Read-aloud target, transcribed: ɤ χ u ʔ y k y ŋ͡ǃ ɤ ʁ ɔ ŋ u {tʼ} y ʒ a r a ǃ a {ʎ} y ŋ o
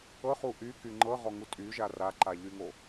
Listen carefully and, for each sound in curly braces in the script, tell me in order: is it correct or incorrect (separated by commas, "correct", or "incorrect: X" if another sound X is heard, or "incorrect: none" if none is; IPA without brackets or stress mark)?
correct, correct